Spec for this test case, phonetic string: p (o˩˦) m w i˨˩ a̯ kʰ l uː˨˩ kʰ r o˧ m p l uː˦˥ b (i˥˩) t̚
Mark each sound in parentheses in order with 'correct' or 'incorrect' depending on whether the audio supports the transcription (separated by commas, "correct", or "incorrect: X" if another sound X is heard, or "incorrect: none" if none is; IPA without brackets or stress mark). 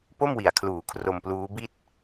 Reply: incorrect: o˥˩, correct